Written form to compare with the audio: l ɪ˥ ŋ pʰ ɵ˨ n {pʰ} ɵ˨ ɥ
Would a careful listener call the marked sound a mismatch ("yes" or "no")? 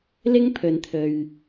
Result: yes